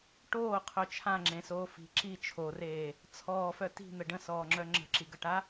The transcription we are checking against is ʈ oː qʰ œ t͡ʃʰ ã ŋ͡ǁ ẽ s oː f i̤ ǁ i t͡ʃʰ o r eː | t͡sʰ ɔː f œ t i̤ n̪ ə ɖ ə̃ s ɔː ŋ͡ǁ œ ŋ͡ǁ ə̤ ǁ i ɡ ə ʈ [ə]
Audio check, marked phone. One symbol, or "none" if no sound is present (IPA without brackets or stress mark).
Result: a